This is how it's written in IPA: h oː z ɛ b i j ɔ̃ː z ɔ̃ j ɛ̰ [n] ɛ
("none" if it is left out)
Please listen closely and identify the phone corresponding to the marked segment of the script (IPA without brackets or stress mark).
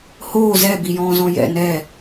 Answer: n